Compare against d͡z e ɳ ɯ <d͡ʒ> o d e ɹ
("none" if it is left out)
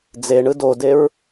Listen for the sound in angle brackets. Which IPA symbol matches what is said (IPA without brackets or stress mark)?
d